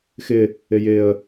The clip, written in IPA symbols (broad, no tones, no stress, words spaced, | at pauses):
xɪ | ɪjɪə̯